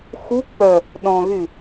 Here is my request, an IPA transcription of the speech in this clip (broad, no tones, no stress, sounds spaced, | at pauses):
x u k͡p œ | ɗ ɔ̃ ɣ y